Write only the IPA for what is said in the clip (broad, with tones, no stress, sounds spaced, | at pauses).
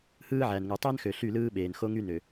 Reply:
h ɯː˦ ʕ æ˨ n ŋ u˨ tˤ æ˦ n x ø˨ ɬ y˦˨ l ɯː˦ ɓ eː˨ n x o˦ ŋ y˦ n ø˨